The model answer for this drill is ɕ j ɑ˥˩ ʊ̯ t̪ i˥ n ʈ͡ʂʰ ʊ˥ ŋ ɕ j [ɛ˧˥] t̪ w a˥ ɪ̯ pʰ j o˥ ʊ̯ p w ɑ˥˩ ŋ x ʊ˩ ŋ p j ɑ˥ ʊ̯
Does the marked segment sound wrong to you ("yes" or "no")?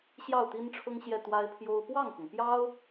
yes